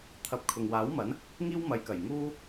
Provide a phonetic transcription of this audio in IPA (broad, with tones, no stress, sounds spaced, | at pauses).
t̪ʰ ɐ˨˥ p̚ kʰ ʊ˨ ŋ w aː˨˥ w m ɐ˨˥ n | ŋ iː˥ w m ɐ˨˧ j k ɐ˨˩ j ŋ uː˧